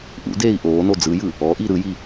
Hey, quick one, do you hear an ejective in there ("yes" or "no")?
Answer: no